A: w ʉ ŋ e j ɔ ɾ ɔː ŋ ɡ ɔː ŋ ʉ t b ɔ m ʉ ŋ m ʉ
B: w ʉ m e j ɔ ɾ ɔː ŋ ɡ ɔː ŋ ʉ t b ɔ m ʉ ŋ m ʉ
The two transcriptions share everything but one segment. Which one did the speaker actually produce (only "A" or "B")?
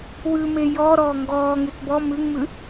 B